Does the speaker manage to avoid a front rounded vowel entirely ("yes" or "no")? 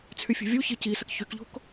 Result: no